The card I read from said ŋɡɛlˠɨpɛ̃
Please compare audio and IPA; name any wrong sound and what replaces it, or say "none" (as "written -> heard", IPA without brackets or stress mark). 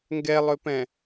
ɨ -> ʏ